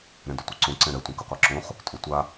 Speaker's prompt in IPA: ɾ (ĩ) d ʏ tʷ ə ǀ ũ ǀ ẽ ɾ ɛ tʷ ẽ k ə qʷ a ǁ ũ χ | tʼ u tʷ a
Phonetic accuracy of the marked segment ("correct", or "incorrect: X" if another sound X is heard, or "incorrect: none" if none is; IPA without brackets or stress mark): incorrect: ẽ